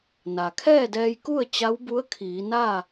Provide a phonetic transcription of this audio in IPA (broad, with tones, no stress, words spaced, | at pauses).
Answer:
na˩kʰɛː˥˨dɛː˧jku˥˨ə̯ t͡ɕa˧˥wbu˧˥ə̯ kʰiː˩˧na˥˨